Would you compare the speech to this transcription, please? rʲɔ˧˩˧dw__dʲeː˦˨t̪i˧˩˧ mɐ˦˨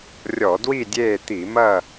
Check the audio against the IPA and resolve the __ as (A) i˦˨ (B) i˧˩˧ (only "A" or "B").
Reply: A